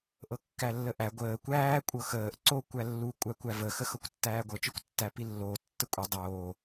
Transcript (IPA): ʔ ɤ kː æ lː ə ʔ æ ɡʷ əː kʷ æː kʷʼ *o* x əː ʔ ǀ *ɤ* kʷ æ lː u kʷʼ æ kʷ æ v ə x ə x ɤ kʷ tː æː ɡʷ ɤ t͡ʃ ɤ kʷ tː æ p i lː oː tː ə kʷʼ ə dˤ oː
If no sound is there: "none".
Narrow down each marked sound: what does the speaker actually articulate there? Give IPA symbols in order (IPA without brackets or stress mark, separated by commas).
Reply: ɤ, o